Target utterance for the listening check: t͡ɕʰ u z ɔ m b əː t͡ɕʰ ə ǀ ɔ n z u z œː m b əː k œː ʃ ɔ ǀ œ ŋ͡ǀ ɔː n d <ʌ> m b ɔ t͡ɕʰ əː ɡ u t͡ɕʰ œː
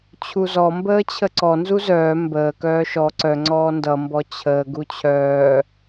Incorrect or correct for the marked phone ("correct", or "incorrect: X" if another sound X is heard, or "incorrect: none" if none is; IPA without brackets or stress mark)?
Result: correct